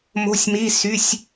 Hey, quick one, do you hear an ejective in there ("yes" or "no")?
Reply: no